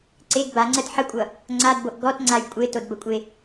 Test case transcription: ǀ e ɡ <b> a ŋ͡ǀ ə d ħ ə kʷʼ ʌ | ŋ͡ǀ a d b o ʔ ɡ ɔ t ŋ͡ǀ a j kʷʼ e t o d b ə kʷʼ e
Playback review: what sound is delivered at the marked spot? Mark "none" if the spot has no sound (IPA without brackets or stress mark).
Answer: b